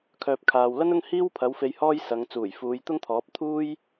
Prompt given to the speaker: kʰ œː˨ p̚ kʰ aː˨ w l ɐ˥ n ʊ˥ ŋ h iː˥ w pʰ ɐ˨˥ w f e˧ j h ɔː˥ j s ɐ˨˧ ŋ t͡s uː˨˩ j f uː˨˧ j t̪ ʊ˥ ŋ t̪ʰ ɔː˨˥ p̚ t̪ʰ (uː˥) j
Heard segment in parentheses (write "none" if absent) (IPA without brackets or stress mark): uː˥